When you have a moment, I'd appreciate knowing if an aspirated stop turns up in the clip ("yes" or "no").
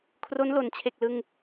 yes